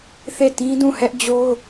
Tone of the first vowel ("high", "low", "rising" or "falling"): falling